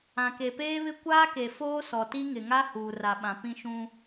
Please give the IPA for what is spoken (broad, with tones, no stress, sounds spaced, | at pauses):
ã˨ k e˨ p eː˦ β ɪ˦ kʷ aː˦ k e˨ f oː˦ s ɔ˨ t i˦ ŋ ɪ˨ ŋ a˦ h uː˨ r a˨ ɓ ã˨ p ĩ˦ ʃ ũ˦